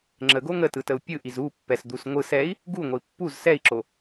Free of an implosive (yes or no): yes